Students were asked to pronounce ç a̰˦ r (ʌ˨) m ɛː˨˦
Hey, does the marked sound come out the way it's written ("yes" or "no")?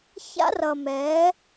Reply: yes